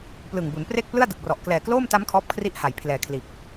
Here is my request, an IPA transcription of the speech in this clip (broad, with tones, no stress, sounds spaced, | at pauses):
p l ɯ˨˩ ŋ b u˩˦ n p r e˥˩ k̚ p l ɯ˥˩ a̯ d ɯ˨˩ k̚ r ɔ˨˩ ʔ k l ɛː˨˩ k l oː˥˩ m t a˦˥ m kʰ ɔː˦˥ p̚ kʰ r i˦˥ ʔ h a˩˦ j pʰ l ɛː˨˩ kʰ l iː˨˩ k̚